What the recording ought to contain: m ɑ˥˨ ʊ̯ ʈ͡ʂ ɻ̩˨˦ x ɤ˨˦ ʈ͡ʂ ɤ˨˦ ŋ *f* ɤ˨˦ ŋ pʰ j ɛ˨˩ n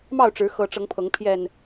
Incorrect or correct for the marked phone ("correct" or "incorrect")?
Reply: incorrect